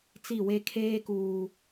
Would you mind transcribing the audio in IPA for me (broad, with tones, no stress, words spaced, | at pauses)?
t͡si˦˨we˦ kʰeː˦kuː˨